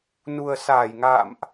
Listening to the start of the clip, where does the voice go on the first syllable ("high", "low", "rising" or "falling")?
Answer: low